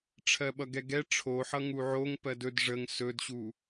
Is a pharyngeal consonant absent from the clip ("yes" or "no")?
no